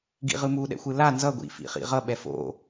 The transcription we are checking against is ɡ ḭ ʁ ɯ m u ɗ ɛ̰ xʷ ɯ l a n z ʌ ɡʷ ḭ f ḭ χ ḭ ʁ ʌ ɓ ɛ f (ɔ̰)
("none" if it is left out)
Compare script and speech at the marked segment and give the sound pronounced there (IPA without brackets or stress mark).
o̰